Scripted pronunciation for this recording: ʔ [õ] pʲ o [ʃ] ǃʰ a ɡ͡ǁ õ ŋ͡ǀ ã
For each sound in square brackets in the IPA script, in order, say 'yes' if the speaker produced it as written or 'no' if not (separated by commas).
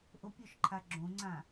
no, yes